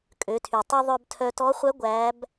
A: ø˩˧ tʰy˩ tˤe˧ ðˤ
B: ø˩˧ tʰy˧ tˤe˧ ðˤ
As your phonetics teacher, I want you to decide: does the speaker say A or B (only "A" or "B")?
A